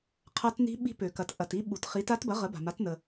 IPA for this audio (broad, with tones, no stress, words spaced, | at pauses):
qʰa˦˥tni̤˦˥ ɓi̤˦˥ pø˩kɐ˩t ʔɐ˩ti˦˥ɓu˩tχi˩˥t a˦˥tbɐ˩˥ ʁə˩˥ba̤˩ma˩˥tnə˩